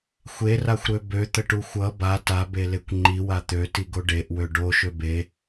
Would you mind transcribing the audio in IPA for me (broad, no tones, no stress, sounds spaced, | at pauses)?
xʷ e r a xʷ ɾ ø b ø t̪ ə ʈ u xʷ ʌ b a t a b e l e kʷ ŋ͡ǃ i w a t̪ ø t i ɡ o ɖ e ʔ w ø ɖ o ʃ ø b e